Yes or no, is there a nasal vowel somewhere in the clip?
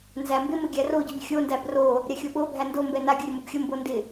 no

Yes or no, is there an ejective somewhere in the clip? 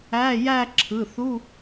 no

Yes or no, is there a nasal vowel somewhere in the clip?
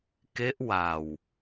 no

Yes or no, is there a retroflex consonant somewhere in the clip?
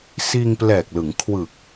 no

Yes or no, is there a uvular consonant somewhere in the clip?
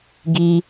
no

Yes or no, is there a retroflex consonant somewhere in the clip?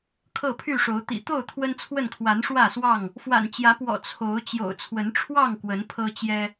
yes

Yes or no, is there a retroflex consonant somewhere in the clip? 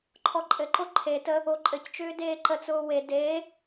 no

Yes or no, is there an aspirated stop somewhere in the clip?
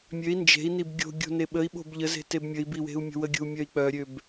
no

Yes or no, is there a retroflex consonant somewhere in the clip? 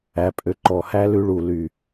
yes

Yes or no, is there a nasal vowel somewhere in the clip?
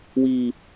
no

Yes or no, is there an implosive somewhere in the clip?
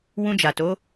no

